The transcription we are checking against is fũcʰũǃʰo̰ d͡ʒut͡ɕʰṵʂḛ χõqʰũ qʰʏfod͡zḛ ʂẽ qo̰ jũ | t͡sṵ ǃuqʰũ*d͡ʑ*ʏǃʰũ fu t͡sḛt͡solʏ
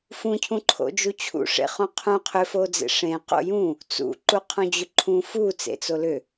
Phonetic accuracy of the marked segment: correct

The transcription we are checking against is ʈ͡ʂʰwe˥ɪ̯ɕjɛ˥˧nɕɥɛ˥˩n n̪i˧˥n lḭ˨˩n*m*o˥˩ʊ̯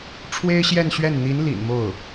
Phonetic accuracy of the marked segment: correct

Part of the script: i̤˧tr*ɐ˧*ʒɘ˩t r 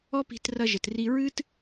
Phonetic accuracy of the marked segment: correct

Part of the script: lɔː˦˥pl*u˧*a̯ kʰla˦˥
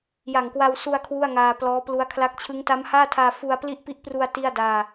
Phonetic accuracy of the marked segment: incorrect: u˦˥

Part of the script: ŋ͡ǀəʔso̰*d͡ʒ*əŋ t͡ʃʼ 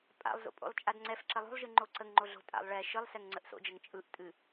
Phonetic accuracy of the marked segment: correct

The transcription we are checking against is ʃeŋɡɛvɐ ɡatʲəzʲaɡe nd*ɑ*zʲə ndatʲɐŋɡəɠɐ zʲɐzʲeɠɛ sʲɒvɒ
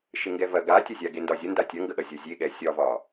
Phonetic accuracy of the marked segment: incorrect: ɒ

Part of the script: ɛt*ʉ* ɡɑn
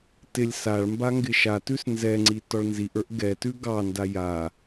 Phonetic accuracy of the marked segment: correct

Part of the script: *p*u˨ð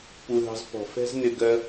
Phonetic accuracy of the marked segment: correct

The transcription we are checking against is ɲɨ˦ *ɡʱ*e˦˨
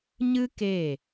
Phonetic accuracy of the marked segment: incorrect: k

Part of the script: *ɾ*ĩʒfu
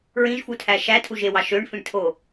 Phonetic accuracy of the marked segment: incorrect: ɹ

